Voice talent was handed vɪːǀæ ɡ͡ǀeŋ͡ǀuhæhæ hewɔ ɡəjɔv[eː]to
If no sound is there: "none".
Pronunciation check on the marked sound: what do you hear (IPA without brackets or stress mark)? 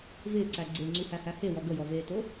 eː